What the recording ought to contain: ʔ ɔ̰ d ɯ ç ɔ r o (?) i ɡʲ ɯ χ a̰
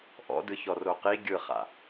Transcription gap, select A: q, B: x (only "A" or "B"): A